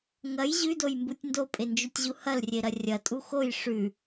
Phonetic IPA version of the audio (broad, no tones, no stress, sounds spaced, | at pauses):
ŋ ɐ j ʑ ʉ d o j m b u tʲ n d o pʼ e n d͡ʒ ʉ tʲ ʑ u h ɐ l rʲ e ɾ ɐ rʲ ɐ tʼ u x o j ʂ ʉ